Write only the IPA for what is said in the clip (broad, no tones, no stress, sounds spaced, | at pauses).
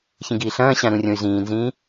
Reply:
ç ĩ ɡ iː ɬ ɐ̃ː ɕ ã ɾ ũ rʲ õ y̯ z ĩː n z ĩː